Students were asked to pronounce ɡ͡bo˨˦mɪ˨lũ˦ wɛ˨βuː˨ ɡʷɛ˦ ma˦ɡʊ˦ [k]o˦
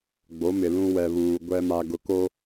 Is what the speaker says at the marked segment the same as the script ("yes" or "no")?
yes